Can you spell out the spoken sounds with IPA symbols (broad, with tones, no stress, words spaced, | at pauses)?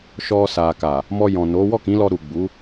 ʃɔ˧sa˨ka˨ | mɔ˧ jɔ̃˨no˨˦ wɔ˦˨kĩ˨˦lɔ˧ ɾu˨ɡ͡bu˨˦